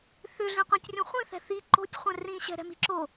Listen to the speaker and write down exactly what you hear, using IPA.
θ ʏ ɮ ĩ qʷ ĩ tʲ rʲ õ χʷ ĩ θ ɛ̤ θ i ǃ o̤ tʲ χʷ ɛ̃ r ĩ ɕ ɛ̤ ɾ ɛ̤ m i̤ ǁ o

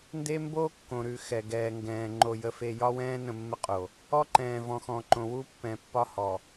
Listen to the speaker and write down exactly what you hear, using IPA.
n d e˦ m b o˦ kː õ˨ ɾ ʉ˨ x ɛ˨ ɡ ɛː˨ ŋ ɡ ɛ̃ː˨ ŋ͡ǃ o˨ j ə˨ f e˨ j ɒ˦ w ɛ̃ː˦ n ə̃˦˨ mː ə˦ qʼ o˨ | ɔ˦ ǃ ɛ̃ː˨ v ɔ̃˨ x ɔ̃˨ ǃ õ˨ w u˦ pː ɛ̃˨ pː ɒ˦ h ɔ˨

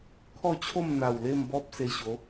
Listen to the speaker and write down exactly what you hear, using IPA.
kʰ ɔ˥˧ t͡ɕʰ o˥˧ m n̪ a˨˩ w l e˥˧ m b ɔ˦ p̚ s e˧ ɕ o˨˦

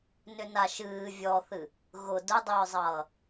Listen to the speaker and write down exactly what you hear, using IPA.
n ʏ n a ʃ ɨː vʲ ɔ θ ɨ | ɣ ʊ d ʊ dˤ ʏː zˤ ʌː

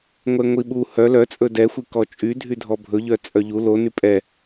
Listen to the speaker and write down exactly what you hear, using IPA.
ŋʷ ɛ ŋʷ i ɓ u h œ l œ t͡sʼ ɵ d ɛ xʷ i k ɔ t͡ʃʼ y dʱ y dʱ ɔ bʱ ɵ ʎ œ t͡sʼ œ ʎ u l o n y pʼ ɛ

